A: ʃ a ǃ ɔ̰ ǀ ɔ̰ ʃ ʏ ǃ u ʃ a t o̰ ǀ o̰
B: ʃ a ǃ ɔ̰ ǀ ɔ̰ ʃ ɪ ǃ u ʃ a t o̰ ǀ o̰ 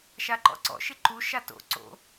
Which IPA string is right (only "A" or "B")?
B